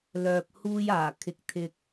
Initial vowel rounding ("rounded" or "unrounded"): rounded